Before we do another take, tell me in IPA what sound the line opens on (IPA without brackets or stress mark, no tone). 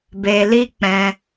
b